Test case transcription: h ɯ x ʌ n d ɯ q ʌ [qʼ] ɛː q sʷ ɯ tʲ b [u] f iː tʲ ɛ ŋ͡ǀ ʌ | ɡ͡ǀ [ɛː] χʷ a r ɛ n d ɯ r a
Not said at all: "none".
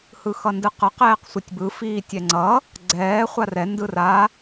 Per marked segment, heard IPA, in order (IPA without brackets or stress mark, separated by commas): q, ɯ, ɛː